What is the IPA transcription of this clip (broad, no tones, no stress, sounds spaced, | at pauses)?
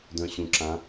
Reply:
d œ̃ ɕ ũ ǁ ã